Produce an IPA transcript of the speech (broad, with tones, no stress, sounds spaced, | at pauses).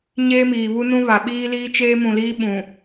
ɲ eː˦ m iː˨ β u˦ n ũ˦ β a˨ ɓ iː˦ l iː˦ t͡ʃ eː˦ m ũ˨ l iː˦ ɓ ũ˨